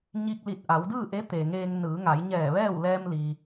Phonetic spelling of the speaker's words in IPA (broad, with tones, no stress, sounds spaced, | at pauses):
ɲ i˧ k̚ l i˧˩ t̚ ʔ a˩˧ w d ɯː˥˨ ʔ e˧˥ t̪ e˩ ŋ eː˧ ŋ n ɯː˩˧ ŋ a˩˧ j ɲ ɛː˧˩ ʋ ɛː˥˨ w l ɛː˧ m l i˩